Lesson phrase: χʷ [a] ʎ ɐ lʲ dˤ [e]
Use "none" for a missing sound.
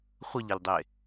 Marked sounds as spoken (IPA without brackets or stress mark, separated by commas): ə, e